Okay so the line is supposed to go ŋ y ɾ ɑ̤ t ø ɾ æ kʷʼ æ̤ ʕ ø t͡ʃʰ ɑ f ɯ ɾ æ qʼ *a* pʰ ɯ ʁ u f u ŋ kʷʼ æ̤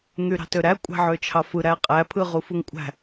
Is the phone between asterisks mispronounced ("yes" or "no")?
yes